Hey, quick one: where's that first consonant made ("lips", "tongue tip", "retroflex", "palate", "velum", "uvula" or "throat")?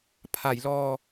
lips